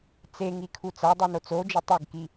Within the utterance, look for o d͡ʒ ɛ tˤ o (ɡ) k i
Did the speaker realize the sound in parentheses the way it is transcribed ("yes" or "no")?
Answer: yes